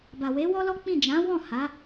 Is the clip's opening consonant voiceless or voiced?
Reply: voiced